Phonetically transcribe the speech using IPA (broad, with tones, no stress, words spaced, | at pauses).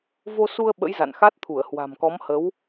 vo˧su˧ə̯ ɓə̰˧˥j za̰˧˨n xa˦˥t̚t̪ʰu˧˩ə̯hwa̤˨˩mkɔ˨˦m hə˨˦w